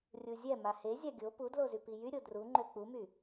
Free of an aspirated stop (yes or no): yes